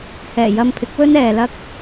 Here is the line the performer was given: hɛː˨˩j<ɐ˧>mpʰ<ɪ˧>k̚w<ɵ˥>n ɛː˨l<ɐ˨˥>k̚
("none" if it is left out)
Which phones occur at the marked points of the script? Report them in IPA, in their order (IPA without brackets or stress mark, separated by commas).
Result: ɐ˧, ɪ˨˥, ɵ˥, ɐ˥